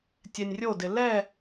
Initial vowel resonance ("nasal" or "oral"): oral